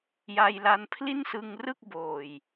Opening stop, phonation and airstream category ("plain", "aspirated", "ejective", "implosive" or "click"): aspirated